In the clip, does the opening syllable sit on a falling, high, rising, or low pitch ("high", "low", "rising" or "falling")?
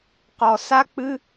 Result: low